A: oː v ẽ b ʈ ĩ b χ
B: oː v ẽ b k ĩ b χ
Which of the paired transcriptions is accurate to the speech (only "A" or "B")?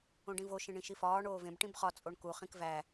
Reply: A